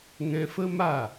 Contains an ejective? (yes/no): no